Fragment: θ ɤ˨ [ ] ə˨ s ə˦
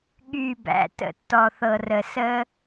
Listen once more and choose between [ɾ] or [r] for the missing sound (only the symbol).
r